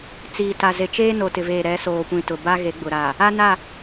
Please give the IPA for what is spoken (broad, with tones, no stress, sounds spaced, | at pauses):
t͡s iː˨ t a˨ z e˨ t͡ʃ eː˦ n o˨ t ɪ˨ v eː˨ ɾ ɛ˨˦ s oː˨ kʷ ĩ˨ t ʊ˨ b a˦ ɣ e˨˦ ɡ͡b ʊ˨ ɾ a˨ | a˦ n a˦˨